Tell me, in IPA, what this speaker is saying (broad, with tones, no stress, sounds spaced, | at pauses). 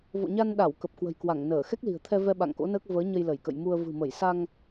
v o̰˧˨ ɲ a˧ n ɗ a˧˩ w k ə˨˩ p̚ k w ə̤˨˩ j k w a˧˩ ŋ n əː˧˩ x ɛ˦˥ k̚ l i̤˨˩ ə̯ t̪ʰ ɛ˧ v ɛ˧ ɓ a̰˧˨ ŋ k o̰˧˥ n əː˦˥ k̚ v əː˨˦ ɲ ə˧ j l ə˧˩ j k ə̰˧˨ j m u˧ ə̯ v ɨ̤˨˩ m ə˧˩ j s a˧ ŋ